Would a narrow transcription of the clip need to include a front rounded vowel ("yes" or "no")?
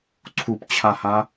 no